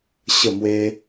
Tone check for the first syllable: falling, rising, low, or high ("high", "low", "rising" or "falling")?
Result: falling